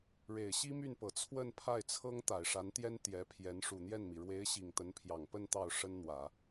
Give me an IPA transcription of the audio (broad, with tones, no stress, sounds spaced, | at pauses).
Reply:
ɻ e˨˩ ɪ̯ ɕ i˥ m y˥˩ n p ɤ˨˩ t͡sʰ w ə˥˧ n pʰ a˥˩ ɪ̯ t͡sʰ ɤ˥ ŋ t̪ a˨˩ ɪ̯ ʂ a˧˥ n t̪ j ɛ˥ n t̪ j ɛ˧˥ pʰ j ɛ˧˥ n ʂ u˨˩ n̪ j ɛ˥˩ n m i˩ ɻ w e˧˥ ɪ̯ ɕ i˨˩ ŋ t̪ ə˧˥ n pʰ j ɑ˨˩ ŋ p ə˥˧ n t̪ ɑ˥˩ ʊ̯ ʂ ə˥ n n̪ w ä˨˩˦